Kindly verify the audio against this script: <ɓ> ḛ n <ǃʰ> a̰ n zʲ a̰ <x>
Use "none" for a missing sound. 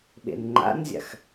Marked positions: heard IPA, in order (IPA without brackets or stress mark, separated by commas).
ɓ, ŋ͡ǃ, x